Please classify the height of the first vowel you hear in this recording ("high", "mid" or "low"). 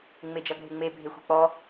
mid